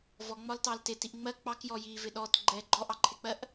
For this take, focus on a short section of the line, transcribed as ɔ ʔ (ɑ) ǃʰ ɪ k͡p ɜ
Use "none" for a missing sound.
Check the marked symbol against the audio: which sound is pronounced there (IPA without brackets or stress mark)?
ɑ